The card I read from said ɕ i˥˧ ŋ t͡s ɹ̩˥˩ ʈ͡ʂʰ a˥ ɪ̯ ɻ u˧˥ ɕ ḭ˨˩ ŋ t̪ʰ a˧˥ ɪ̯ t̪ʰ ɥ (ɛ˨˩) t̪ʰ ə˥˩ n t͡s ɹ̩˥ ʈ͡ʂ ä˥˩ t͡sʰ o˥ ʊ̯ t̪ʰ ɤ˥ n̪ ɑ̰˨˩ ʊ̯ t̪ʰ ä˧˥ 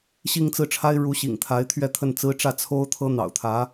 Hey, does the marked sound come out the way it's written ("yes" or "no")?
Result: no